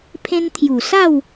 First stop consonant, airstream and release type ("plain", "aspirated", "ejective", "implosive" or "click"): aspirated